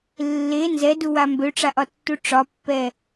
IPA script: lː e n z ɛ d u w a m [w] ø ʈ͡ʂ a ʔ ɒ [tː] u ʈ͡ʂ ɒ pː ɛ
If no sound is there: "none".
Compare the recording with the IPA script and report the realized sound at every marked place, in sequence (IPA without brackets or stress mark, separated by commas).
b, tː